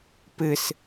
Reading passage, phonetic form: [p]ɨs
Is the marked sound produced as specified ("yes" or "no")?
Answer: yes